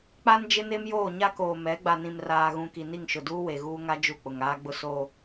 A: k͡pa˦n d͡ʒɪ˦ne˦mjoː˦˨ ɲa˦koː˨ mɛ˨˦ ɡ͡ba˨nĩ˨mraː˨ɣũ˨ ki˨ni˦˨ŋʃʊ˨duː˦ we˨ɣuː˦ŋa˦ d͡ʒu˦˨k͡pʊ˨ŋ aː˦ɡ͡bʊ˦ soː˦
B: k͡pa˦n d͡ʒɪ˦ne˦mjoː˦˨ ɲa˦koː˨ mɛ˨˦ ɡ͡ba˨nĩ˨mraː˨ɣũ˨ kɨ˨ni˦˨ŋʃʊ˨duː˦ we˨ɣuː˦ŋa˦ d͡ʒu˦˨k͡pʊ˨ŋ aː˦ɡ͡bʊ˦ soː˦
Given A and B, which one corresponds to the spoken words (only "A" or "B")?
A